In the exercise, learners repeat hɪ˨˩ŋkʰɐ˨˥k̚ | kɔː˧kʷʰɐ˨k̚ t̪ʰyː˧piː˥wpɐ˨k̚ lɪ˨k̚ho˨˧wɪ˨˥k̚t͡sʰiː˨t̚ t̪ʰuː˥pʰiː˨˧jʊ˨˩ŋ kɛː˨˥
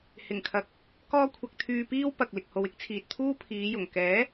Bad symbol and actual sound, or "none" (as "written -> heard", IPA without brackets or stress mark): none